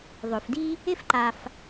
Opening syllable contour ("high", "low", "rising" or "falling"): low